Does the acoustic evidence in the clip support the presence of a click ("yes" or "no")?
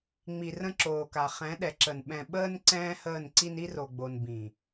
yes